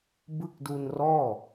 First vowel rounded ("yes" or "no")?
no